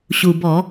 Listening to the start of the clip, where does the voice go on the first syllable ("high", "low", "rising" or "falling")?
low